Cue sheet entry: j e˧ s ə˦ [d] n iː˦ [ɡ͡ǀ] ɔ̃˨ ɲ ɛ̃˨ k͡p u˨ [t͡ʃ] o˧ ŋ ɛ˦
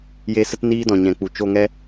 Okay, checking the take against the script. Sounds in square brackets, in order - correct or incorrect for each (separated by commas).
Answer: incorrect, incorrect, correct